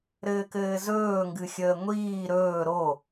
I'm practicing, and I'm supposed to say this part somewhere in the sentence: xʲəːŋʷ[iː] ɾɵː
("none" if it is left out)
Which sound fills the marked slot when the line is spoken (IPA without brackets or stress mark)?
iː